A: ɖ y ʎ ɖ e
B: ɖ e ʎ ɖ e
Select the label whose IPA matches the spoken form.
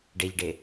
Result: B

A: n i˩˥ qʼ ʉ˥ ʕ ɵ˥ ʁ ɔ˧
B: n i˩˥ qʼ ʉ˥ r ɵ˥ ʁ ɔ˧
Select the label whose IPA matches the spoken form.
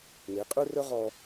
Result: B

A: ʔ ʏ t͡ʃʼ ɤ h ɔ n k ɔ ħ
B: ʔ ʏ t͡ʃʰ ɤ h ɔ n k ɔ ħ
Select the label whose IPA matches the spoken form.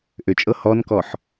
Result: A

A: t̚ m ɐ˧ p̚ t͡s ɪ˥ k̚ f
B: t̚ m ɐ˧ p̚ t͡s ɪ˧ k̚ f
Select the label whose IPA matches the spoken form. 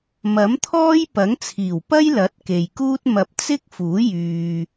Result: A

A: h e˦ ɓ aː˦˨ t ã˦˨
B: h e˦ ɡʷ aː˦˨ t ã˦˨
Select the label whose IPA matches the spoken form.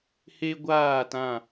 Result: B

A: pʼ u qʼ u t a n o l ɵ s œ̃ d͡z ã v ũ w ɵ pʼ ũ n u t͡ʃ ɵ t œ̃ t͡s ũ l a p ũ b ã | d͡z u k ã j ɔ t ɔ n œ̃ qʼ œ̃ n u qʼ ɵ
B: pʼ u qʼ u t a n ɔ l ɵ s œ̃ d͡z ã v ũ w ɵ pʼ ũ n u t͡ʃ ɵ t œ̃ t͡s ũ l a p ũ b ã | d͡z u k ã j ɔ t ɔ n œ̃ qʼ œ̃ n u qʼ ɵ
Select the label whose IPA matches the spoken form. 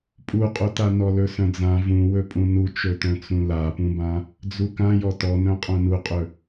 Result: B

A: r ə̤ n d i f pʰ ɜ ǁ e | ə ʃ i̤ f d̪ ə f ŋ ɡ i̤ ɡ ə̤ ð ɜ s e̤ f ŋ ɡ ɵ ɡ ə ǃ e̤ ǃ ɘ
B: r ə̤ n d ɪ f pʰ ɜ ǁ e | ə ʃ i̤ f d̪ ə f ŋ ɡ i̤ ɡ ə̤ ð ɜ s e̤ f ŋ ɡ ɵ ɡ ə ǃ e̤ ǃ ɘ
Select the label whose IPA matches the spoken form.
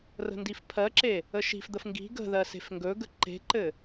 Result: A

